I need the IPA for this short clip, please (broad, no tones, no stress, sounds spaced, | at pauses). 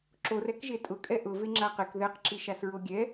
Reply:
ǁ o r ɛ k ʒ e tʼ ʊ kʼ ɛ ʔ ʊ v e ŋ͡ǁ a q e k ð ɛ q ǁ i ʃ a s ɹ o ɡʲ ɛ